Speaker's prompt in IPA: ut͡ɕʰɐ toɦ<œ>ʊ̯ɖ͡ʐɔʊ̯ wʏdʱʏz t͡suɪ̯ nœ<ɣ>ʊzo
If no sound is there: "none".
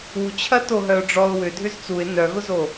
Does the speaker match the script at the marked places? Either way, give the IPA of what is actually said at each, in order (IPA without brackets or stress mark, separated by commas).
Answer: œ, ɣ